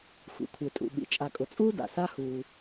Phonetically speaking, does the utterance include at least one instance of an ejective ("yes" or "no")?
yes